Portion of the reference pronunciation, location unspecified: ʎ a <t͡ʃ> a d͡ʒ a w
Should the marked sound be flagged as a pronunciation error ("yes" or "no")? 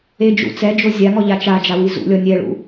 no